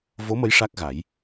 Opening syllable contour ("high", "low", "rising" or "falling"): rising